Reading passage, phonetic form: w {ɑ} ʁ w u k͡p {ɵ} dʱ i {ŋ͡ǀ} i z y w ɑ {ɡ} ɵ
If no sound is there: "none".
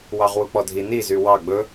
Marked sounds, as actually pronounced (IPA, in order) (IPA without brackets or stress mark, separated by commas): ɑ, ɔ, n, ɡ͡b